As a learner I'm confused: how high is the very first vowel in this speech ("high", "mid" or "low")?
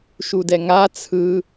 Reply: high